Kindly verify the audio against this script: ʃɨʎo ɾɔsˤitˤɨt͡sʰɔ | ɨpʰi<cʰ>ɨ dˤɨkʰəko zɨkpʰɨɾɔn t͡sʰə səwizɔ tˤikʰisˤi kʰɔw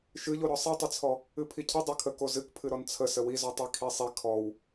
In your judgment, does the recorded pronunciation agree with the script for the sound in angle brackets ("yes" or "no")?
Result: yes